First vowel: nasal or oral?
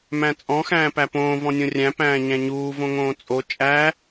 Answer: nasal